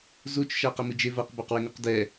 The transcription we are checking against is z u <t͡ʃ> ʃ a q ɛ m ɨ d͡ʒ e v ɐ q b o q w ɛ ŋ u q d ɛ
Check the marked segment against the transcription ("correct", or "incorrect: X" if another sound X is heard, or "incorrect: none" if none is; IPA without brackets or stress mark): correct